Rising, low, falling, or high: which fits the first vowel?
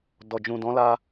low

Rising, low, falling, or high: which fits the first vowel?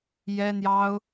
high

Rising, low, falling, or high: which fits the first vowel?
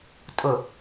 low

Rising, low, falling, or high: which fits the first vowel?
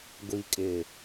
low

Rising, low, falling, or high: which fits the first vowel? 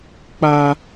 high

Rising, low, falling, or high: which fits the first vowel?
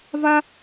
high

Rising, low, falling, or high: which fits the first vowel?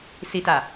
low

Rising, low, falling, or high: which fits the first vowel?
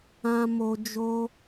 high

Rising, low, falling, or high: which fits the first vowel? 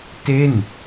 falling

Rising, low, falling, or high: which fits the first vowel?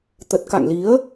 low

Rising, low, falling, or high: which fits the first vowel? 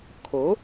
rising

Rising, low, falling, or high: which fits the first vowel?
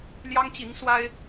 high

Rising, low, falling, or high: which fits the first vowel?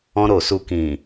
high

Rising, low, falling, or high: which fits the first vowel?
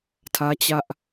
high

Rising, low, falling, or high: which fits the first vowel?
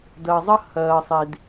low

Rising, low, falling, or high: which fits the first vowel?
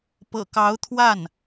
low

